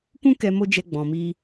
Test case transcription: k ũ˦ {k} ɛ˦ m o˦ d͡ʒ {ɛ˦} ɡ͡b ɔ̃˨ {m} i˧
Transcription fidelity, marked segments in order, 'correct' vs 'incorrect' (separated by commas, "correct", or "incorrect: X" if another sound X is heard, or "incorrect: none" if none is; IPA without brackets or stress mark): correct, incorrect: ɛ˧, correct